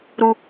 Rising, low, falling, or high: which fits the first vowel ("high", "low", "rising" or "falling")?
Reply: low